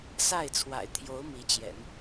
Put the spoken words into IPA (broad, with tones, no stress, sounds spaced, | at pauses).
s a˥˩ ɪ̯ t͡sʰ w a̰˨˩ ɪ̯ t̪ʰ j o˧˥ ʊ̯ m i˧˥ t͡ɕ j ɛ̰˨˩˦ n